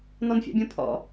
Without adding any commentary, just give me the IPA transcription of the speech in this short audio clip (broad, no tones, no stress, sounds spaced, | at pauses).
n ɔ n fʲ a̰ bʲ õ pʰ ɔ̰